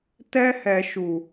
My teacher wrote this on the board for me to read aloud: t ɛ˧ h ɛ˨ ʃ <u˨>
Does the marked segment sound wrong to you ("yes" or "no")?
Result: no